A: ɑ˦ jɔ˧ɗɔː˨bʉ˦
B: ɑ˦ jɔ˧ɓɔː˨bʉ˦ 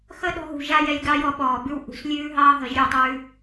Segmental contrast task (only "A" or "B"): B